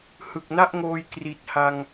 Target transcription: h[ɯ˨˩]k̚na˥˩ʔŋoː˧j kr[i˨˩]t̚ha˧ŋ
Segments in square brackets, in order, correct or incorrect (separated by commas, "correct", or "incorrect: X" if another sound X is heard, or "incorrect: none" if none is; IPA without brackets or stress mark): correct, correct